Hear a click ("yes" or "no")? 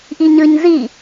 no